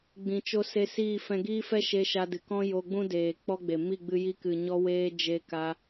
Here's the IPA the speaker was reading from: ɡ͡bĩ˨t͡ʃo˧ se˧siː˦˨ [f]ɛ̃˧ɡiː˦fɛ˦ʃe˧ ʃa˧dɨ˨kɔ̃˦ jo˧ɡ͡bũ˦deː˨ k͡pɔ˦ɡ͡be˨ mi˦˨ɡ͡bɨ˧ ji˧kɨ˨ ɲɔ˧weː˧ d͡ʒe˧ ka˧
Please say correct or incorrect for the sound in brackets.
correct